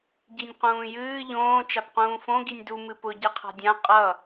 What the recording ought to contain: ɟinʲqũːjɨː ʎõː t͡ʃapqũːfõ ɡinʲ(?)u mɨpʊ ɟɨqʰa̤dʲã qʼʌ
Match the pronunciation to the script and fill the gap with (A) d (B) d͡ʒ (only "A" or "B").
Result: A